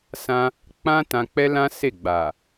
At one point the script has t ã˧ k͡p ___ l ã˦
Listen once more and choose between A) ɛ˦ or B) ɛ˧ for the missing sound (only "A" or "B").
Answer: A